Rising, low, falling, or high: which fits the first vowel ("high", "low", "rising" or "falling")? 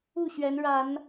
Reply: falling